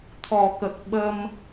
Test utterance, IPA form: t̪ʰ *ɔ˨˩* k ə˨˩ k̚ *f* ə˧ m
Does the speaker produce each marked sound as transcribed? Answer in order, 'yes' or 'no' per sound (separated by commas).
yes, no